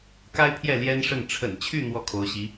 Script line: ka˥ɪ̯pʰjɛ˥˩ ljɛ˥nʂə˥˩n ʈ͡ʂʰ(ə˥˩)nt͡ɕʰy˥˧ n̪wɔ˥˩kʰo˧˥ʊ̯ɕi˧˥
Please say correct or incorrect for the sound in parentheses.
incorrect